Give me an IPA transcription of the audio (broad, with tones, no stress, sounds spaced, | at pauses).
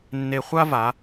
nː e˧ χʷ a˥ v a˩˧